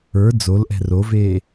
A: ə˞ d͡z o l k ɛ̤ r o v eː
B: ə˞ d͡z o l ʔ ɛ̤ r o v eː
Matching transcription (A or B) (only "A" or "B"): B